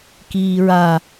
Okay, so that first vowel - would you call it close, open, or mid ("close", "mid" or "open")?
close